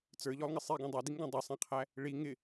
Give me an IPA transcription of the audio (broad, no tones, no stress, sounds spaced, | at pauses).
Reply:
t͡s ə˞ ʎ ɔ lˠ ŋ ɪ sˤ i ɡ ɔ̃ dˤ ɛ d i ŋ ɡ ɔ̃ dˤ ə sˤ ɛ̃ qʰ æ | ɭ i ŋ ɪ